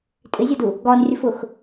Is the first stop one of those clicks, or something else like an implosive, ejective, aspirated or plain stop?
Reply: ejective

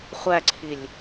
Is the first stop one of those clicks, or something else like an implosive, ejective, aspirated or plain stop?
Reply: click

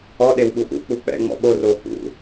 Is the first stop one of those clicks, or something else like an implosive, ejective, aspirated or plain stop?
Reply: implosive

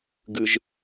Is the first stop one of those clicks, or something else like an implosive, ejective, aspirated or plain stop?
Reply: plain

